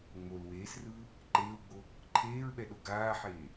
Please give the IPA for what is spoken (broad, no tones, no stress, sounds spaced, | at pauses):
ŋ͡m o l w eː s r ɯː | ǃ eː w ɡ͡b o | ǃʰ eː ɹ ɓ ɛ ɗ o ɡ aː ħ eː